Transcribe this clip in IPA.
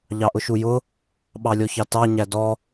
ʎ ɑ ʔ ʊ ʃ u j ʊ | ɓ ɑ lʲ ɔ ç ɑ t ɑ ɲ æ d ɔ

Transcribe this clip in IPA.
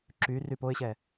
ǁ y r y p o ɪ̯ ɕ ɛ

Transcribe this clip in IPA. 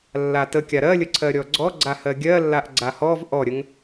lː a t ə kʲ a ɾ ɜ lʲ ə ǀʰ ɜ ɾʲ ɔ ɡ͡ǀ ɔ ɡ͡ǀ a h ɜ ɡʲ ɜ lː a ʔ ɡ͡ǀ a h ɔ v ʔ ɔ ɾʲ ə ŋ

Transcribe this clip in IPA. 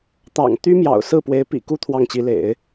t̪ ɑ̰˨˩ ŋ t̪ y˥ m j ɑ̰˨˩ ʊ̯ s ɹ̩˥˩ p w e˧˥ ɪ̯ p ḭ˨˩ k u˥ t̪ʰ w ɑ˥˩ ŋ t͡ɕ i˧˥ l ḛ˨˩˦ ɪ̯

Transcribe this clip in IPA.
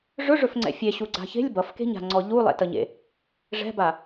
ʐ ɵ ʐ ɵ f ŋ͡ǀ ɛ̰ fʲ e ɕ u ɡ͡ǀ a̤ ç e̤ lʲ b ʌ f k e̤ ɲ a̤ ŋ͡ǀ ɔ ʎ u lˠ ɛ̰ t ʌ ɲ ḛ | ʐ ɛ̤ b a

